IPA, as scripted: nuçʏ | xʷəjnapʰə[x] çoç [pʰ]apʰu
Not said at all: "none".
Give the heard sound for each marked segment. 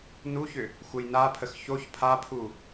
x, pʰ

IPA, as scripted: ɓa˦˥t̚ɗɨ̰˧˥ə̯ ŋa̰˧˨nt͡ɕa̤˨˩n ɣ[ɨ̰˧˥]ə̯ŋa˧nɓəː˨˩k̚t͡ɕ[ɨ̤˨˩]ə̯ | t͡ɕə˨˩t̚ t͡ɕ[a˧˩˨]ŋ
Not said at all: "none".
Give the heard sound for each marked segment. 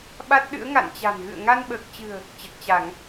ɨ̰˧˨, ɨ̤˨˩, a˧˩˨

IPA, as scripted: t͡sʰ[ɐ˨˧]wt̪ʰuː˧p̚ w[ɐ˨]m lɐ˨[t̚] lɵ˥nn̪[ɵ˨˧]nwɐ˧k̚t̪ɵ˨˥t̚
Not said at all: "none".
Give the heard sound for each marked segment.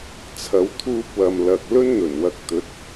ɐ˨˧, ɐ˨, k̚, ɵ˨˩

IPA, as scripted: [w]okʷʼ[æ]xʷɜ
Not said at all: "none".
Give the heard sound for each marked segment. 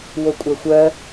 w, æ

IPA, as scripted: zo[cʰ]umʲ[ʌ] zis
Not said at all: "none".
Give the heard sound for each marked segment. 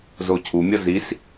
cʰ, ʌ

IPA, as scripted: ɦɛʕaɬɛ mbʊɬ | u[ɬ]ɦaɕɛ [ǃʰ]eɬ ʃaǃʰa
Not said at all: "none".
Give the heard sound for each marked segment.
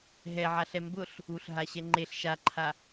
ɬ, ŋ͡ǃ

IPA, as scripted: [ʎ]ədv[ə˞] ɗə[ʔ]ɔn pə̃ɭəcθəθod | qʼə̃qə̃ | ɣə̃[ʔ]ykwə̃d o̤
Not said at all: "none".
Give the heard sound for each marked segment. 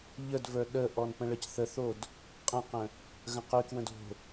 ʎ, ə˞, ʔ, q

